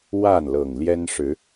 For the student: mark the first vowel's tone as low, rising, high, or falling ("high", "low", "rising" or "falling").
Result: falling